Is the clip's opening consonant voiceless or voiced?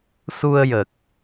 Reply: voiceless